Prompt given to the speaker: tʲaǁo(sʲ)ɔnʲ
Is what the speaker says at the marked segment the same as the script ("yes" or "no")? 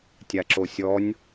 yes